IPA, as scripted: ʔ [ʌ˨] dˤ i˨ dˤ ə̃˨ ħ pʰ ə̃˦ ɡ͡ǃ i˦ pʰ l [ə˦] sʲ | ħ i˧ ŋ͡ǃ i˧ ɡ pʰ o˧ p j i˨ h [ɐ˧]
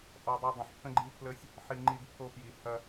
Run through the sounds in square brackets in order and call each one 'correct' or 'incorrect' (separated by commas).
incorrect, correct, correct